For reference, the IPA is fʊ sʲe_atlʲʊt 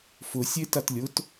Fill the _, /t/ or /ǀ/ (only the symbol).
t